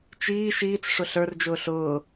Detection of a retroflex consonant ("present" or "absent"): present